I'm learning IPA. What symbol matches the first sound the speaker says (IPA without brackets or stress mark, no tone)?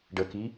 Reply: ɖ